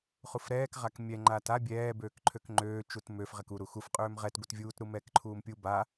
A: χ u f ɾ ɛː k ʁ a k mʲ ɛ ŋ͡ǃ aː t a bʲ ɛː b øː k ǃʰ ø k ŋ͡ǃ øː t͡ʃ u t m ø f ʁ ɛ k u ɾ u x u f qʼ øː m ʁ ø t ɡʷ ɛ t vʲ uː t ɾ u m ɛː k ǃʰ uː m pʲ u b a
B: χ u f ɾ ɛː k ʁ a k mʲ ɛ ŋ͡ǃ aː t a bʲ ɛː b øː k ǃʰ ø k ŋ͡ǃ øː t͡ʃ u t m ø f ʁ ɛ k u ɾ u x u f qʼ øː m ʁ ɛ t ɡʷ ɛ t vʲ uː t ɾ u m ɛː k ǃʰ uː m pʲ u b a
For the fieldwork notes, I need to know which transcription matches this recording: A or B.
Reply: B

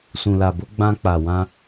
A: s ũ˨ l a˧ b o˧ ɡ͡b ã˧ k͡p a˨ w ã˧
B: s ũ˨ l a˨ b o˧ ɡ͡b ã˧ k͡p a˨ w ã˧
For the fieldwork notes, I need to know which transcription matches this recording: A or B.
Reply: B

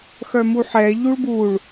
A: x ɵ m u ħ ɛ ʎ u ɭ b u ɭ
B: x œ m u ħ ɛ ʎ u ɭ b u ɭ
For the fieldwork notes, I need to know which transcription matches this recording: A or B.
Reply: B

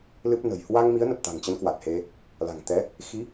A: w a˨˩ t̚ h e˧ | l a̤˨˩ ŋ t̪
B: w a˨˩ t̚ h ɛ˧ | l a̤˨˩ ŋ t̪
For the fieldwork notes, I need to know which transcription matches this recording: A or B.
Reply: A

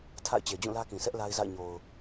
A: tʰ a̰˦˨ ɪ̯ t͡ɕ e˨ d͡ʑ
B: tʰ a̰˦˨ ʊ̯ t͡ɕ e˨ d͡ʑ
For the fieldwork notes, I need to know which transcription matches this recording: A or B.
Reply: A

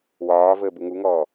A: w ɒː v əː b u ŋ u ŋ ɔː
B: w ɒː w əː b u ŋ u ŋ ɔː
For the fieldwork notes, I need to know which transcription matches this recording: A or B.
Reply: A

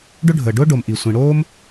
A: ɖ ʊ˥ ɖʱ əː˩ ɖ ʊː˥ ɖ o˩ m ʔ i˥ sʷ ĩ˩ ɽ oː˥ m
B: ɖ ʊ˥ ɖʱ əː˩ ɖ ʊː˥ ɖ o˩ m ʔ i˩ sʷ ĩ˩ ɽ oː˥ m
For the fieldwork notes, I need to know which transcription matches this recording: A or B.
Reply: B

